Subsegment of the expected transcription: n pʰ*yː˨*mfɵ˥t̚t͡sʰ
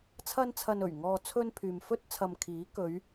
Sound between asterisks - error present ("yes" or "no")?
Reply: no